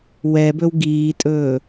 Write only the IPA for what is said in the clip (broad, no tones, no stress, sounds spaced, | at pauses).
w ɛ b ɵ w ɡ iː tʼ ɵː